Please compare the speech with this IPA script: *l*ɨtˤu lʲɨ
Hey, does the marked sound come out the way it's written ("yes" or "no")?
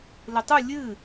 yes